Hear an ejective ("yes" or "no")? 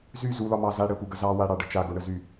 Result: no